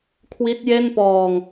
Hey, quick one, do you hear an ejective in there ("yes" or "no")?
no